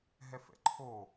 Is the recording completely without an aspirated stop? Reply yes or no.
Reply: no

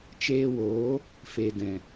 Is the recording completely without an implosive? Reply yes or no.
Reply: yes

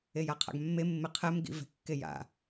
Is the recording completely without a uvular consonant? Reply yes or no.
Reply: no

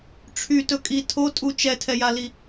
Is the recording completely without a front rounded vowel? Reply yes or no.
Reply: no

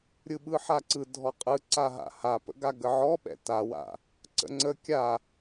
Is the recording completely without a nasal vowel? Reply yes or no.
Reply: yes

